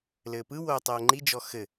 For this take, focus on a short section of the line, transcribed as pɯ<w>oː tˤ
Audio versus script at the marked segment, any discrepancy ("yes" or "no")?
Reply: no